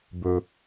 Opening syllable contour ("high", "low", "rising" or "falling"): high